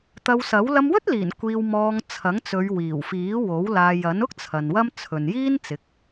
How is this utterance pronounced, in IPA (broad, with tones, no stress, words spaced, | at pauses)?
t̪ɐ˧wsɐ˨˥w lɐ˧mwɵ˥t̚liː˨˩n kʷiː˧wmɔː˧ŋ t͡sʰɐ˨˥ŋ t͡sɵ˨˧ɥwiː˨˩wfiː˨˥wo˨˥w laː˧jɐ˨˥n ʊ˥k̚ t͡sʰɐ˨nwɐ˥mt͡sʰɵ˨n jiː˥n t͡sɪ˨˥k̚